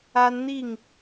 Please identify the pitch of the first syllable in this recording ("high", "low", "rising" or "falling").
high